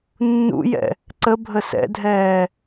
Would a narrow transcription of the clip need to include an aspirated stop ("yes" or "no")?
no